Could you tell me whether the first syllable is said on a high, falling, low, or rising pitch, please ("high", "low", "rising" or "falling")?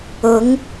rising